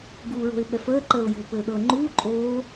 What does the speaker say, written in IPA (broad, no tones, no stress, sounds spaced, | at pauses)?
ɡ uː ɹ o̤ ɪ̯ ɓ ɛ f əː ǃ əː ʊ̯ j o̤ p ɘː ɗ ɤ ŋ͡ǃ uː ǃʼ oː